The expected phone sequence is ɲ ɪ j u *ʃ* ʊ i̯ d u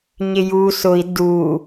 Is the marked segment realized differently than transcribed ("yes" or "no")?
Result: yes